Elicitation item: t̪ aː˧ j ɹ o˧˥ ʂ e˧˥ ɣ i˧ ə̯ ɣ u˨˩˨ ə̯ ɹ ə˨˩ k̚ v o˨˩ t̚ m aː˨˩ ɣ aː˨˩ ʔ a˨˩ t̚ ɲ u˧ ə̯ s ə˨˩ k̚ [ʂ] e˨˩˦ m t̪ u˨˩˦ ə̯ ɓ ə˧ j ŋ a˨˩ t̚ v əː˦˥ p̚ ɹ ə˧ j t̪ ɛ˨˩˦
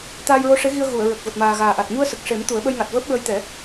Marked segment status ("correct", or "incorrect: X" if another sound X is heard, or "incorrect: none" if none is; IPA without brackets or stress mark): correct